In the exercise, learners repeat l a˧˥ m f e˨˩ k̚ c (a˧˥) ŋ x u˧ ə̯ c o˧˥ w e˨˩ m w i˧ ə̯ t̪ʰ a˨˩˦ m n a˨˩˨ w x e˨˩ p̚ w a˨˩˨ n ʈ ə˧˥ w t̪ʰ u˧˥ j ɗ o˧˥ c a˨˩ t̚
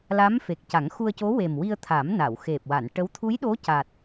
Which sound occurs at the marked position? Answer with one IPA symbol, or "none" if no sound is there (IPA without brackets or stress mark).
a˨˩˦